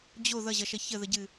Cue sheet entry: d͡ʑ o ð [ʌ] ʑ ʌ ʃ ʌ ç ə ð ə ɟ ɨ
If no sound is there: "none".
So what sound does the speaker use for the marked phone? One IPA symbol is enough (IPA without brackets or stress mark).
ʌ